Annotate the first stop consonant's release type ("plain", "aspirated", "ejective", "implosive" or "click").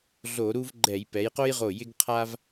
click